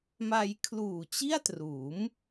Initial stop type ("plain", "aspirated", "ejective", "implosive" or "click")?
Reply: aspirated